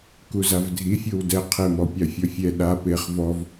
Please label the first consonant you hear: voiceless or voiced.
voiceless